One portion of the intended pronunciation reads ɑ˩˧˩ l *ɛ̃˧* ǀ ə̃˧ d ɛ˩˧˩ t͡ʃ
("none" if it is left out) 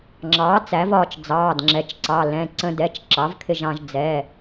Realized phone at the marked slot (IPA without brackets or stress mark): ɛ̃˩˧˩